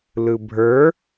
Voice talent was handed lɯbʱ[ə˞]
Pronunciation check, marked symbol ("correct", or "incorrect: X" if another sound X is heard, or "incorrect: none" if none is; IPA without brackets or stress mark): correct